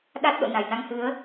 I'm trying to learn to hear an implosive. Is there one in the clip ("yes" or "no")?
yes